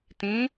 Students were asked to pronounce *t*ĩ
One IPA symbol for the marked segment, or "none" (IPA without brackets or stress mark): t